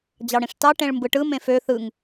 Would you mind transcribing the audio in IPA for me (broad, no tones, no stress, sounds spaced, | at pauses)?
d͡ʑ ɑ ɽ ĩ ʂ t ɑ ʈ ẽ ɭ m b ɯ ʈ ɯ m ẽ f ø θ ɯ ŋ